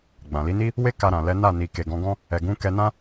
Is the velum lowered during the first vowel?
yes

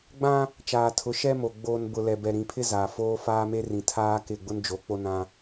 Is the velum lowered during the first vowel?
yes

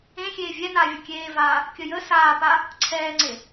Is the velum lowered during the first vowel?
yes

